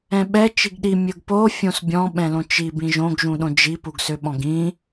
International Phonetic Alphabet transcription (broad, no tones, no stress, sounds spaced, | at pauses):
ɛ̃ ɓ ɛ t͡ʃ i ɡ ɗ i mʲ ɵ ɡ p o fʲ õ s bʲ ɔ̃ ɓ ɛ̃ l õ t͡ʃ i b ĩ ʒ õ ɡ ʒ ũ ɗ õ d͡ʒ i p u ɡ s ø ɓ ɔ̃ ɡ ĩ